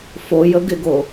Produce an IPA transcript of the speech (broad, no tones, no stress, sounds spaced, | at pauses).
f o j ə ɡ ɪ ɡ o